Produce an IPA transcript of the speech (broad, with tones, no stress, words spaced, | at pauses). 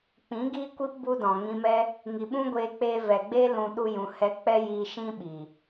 k͡pĩ˨˦ɡiː˦kʷi˦p bu˦dɔ̃˨ ŋĩ˧mɛ˦ | ŋi˨ɓũ˦ɡʷeː˧ k͡peː˧vɛ˨ɡ͡beː˦ lũ˧ ɗu˧jũ˨ hɛ˧k͡pɛ˦jiː˧ ʃĩ˦ɓiː˨